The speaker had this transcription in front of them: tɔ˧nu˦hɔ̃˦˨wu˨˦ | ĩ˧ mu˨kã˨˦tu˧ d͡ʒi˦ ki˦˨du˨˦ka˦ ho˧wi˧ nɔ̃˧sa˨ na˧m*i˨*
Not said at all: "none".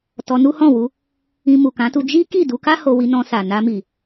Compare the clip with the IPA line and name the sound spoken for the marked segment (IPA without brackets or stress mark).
i˨